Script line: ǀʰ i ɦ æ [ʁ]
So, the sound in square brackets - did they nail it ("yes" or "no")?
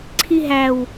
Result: no